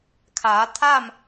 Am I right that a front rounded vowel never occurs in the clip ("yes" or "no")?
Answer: yes